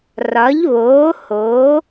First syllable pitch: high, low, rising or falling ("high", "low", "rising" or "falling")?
rising